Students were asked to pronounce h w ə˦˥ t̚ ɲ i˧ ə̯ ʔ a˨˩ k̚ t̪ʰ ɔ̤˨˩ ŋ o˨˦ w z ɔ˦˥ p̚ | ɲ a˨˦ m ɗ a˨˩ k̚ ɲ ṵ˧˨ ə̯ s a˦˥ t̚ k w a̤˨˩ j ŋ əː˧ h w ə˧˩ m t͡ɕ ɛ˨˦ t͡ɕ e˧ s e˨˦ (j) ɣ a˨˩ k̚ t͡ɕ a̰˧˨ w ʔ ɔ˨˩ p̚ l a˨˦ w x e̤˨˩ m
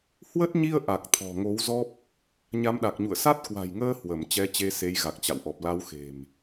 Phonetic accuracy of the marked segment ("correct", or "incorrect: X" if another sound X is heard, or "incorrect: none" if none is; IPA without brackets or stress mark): correct